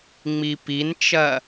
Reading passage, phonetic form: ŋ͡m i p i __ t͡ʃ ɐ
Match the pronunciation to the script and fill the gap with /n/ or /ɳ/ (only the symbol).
n